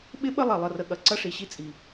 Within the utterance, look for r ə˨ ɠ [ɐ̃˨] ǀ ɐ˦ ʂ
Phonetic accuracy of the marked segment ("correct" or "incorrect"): incorrect